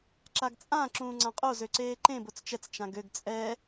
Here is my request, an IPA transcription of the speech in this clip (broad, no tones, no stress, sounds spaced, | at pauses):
ǁ a ɡ t͡sʼ ã ǁ ũː ŋ͡ǀ ã qʼ o z ø ǀ eː ǃ ẽ b o t͡s t͡ʃ ɛ t͡s t͡ʃ ã ɡ ø ɡ t͡sʼ ɛ